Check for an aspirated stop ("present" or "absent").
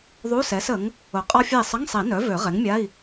absent